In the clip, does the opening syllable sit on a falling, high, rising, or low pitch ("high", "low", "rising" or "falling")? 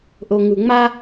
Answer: low